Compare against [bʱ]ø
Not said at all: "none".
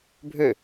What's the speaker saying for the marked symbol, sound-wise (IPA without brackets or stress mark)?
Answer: bʱ